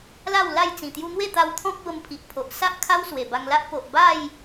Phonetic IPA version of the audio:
l a˥˧ w l a˥˧ j t͡s ĩ˨˩ t̪ j u˧ n̪ w e˥˧ t̪ a˧ w t̪ʰ ɔ̃˦ k̚ b ə˧ m pʰ i˨ ʔ pʰ o˨ ʔ s a˦ ʔ kʰ a˦ w s w e˨˩ b a˧ ŋ l a˦ ʔ p o˨ ʔ b a˥˧ j

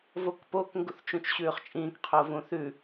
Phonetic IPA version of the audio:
v o k p o k ŋ ɡ u θ t͡ʃ ũ t͡ʃ ɕ ʉː χ t͡ʃʼ ĩː k qʰ o v ũ θ ʉ

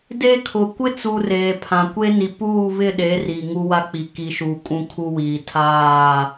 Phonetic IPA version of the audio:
d e˦ kʰ ʊ˨ kʷ ɪ˦ t͡s u˨ r eː˨ pʰ ã˨ kʷ e˦ n i˨ p uː˦˨ β ɪ˦˨ ɗ e˨˦ r iː˨ ŋ u˦ w a˦ k͡p i˨ k i˨ ʃ uː˨ kʼ ũ˦ kʰ u˦ w iː˨ tʰ aː˦˨

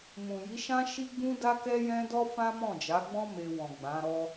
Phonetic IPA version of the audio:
m ũ˨ j i˨˦ ʃ ã˦ ʃ i˦ ɡ͡b ũ˦ d a˦ k ɛ˦ j ɛ̃˦ d ɔ˦ f ã˦ m ɔ̃˦˨ d͡ʒ a˨˦ ɡ͡b ɔ̃˦ m e˧ w ɔ̃˨ ɡ͡b ã˨˦ ɾ ɔ˦

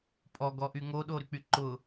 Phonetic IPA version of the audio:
pʼ ɔ ɡ ɔ ʔ y ŋ o ɗ o ɾ y k͡p y ǃ ʊ

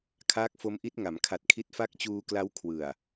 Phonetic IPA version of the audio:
kʰ aː˦˥ k̚ f o˦˥ m ʔ i˦˥ t̚ ŋ a˩˦ m kʰ a˨˩ t̚ kʰ i˦˥ t̚ f a˦˥ k̚ t͡ɕ uː˧ k l a˦˥ w kʰ w ɯ˨˩ a̯

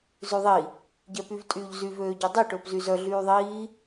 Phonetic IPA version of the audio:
z ʉ ðˤ i | ɟ ɛ p y v tʼ yː ʎ z y v øː ɟ ø dˤ i ʈ ɵː p z y z œ ɮ yː ðˤ iː

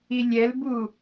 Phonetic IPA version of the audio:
i lʲ ɛ l b u

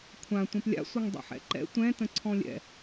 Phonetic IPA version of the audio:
kʷʰ ã tʷ ɛ̃ p lʲ a̰ sʷ ʌ ŋ dˤ ɛ̰ ħ ɛ̰ ǃ ɛ̰ tʷ ɛ̃ t ə̃ ǀʰ ɔ̃ lʲ ɛ̰

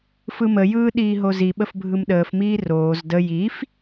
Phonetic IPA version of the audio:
f ɯ m ə j ɯː ɗ iː ɦ o z i ɓ ə f bʱ ɯ m ɗ əː f m iː r oː z d ə j i f

